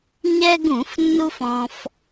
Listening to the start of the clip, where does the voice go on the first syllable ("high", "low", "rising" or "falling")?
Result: high